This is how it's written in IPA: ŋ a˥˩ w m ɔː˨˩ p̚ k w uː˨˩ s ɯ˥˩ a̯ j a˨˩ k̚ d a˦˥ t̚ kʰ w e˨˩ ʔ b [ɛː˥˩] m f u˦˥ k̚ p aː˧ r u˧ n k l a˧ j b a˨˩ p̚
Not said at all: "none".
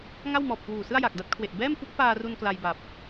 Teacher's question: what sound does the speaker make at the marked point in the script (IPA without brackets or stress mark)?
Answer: ɛː˥˩